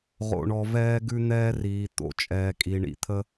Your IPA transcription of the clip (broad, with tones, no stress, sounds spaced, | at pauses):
ʁ o̰˨ ɳ ɔ˨ v ɛː˦ ɡ ʉ˦ n̪ ɛː˦ r iː˨ t̪ o̰˨ t͡ʃʼ ɛː˨ kʼ i˨ ɳ ḭ˨ t̪ʰ ə˦